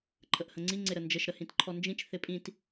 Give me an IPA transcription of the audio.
ǃʰəʔhə̃ŋ͡ǀi ŋ͡ǀɪɾənd͡ʒəʃ ɾəhĩtǃʰɔnd͡ʒĩt͡ʃ θɪpʼĩt

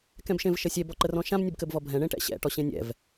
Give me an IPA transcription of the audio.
kɛ̃bʃẽvʃɘsʲeb ɔǃərɔ̃ʃãb nʲɘbkɘbvɔbʱɛ̃ ɳẽʈɛ̰ ɕɛ̰ ʈɔɕẽnʲɛ̰v

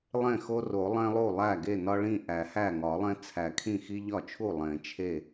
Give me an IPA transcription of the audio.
lˠẽ˥˩xo˦ro˨˩˦ lˠẽ˦lˠu˥˩lˠæ˥˩ ɡe˥˩nɒ˦ɭĩ˥˩ ʔæ˨˩˦hæ˥˩ŋɒ˨˩˦lˠẽ˦ t͡sʰæ˨˩˦kʰĩ˥˩ xi˦ʎɒ˥˩t͡ʃʰu˥˩ lˠẽ˨˩˦t͡ʃʰe˥˩

